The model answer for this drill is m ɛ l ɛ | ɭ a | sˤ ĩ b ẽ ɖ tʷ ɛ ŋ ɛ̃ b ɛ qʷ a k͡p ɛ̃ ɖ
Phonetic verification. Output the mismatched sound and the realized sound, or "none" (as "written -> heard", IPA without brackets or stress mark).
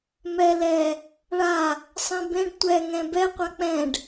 none